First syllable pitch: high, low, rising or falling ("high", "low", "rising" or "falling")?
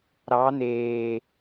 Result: rising